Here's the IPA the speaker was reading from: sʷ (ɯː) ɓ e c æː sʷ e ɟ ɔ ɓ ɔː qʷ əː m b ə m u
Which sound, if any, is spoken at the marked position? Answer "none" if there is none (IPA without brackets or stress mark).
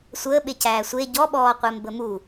əː